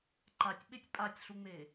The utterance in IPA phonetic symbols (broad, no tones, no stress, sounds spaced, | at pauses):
ǃ a tʲ ɓ e tʲ pʼ a tʲ ɬ u ŋ͡m e